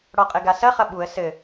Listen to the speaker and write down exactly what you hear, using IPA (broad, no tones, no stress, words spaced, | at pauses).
ɽɔqʼɘɡasɐ χɐɓuə̯ sɘ